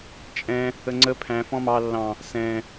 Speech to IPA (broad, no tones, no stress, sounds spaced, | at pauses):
t͡ʃʼ ɛ̃ | ə ŋ͡ǀ ə pʰ æ̃ f ɔ̃ m ɑ lː ɑ̃ | s ɛ̃